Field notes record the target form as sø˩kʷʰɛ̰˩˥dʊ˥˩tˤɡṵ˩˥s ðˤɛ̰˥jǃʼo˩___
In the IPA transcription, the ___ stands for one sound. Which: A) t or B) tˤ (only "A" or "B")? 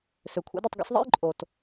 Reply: A